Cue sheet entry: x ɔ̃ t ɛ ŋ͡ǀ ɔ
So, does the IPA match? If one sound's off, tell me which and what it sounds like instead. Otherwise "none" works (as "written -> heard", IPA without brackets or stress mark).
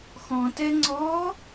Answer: none